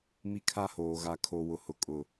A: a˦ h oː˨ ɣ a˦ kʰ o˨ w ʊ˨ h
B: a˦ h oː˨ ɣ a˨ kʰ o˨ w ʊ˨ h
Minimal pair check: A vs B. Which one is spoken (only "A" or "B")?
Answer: B